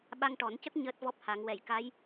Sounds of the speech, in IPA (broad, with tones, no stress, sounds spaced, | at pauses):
ɓ a˧ ŋ ʈ ɔ˨˩˦ n c ə˦˥ k̚ ɲ əː˦˥ t̚ v ɔ˦˥ p̚ h a˨˩˦ ŋ w ɛ˨˩˨ j k a˧˥ j